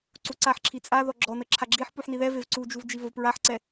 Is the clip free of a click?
no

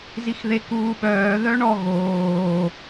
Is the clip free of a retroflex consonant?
no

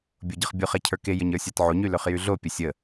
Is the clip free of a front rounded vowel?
no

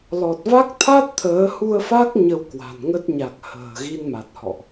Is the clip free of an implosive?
yes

